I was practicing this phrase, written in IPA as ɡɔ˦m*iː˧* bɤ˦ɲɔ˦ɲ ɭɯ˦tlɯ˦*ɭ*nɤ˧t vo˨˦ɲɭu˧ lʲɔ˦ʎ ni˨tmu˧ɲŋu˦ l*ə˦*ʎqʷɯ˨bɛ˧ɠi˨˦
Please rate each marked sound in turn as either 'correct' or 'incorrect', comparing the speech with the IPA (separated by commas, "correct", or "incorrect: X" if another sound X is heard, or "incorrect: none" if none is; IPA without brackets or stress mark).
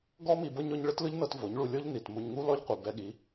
incorrect: i˧, incorrect: ʎ, incorrect: ɔ˦